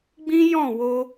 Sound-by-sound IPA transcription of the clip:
ɡ͡b ĩ˦ j ɔ̃˦˨ w o˧

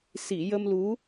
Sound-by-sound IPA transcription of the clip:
s i˨˩˨ j ə˧ m l u˧˥

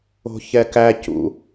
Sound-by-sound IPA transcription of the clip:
o̤ ç ɛ k æ c ṵ

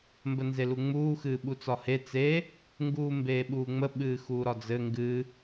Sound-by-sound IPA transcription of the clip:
m b ə n z e l u ŋ͡m uː x ɨː ɓ u t͡s ɒ h e t͡s e | ŋ ɡ uː m b eː ɓ uː ŋ͡m ə ɓ ɨː x uː ɾ ɒ d͡z ɘ ŋ ɡ ɨ

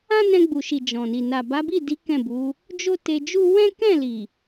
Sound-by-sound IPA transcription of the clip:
ã˦ n ɛ̃˧ ɡ͡b u˨ ʃ i˨ d͡ʒ ɔ̃˨ n i˨ n a˨ b a˨˦ b i˦˨ d i˨˦ k ɛ̃˦˨ b u˨˦ | d͡ʒ o˦ t e˧ d͡ʒ u˦ w ɛ̃˦ k ɛ̃˦˨ l i˨

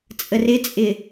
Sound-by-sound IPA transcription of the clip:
t͡sʼ ə r ɪ t͡sʼ ɪ

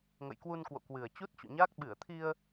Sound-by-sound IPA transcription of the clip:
ŋ ə̰˧˨ j k w u˧ n k w o̰˧˨ k w ɨ˨˩ ə̯ t͡ɕ u˦˥ t̚ t͡ɕ ṵ˧˨ ɲ aː˦˥ k̚ ɓ ɨ˧˩ ə̯ t̪ʰ i˧ ə̯

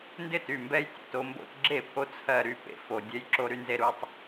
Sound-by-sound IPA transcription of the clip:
n d ɪ˥˩ t y˨˩ m b ɛ˦ j tʲ o̰˨˩ t o˦ m b o̰˦ t ɡ͡ǁ e˥˩ pʰ o˦ t͡sʰ ɜ˨˩ ɾ y˥˩ p ḛ˨˩ f o˨˩ dʲ ɛ˦ j ǁ o˦ ɾ y˦ n z e˦ ɾ u˦ tˤ

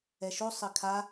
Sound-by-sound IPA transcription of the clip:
ɛ ʃ o sˤ ɘ kʰ a

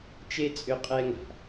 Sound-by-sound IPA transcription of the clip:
t͡ʃ e˥ t͡sʼ ʏ˥ qʼ ɛ˥ ŋ a̤˩

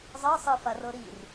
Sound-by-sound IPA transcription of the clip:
zˤ ɤ sˤ ɯ f a r ɤ ɾ i r

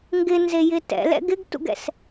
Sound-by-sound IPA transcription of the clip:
ŋ ɡ ɪ n z e j ɪ t ɛ̰ l ɛ̰ ɡ ɪ ɡ t ṵ ɡ ɛ̰ s

